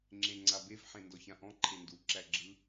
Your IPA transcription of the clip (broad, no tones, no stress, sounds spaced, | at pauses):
ŋ͡ǁ ẽ ŋ͡ǀ a b e v ħ ẽ n d ɔ ç ã ʔ ɔ̃ ǃʰ e n d u ǁ æ ɡ͡ǁ ɯ